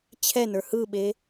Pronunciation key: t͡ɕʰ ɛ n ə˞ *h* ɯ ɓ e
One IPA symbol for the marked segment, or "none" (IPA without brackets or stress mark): h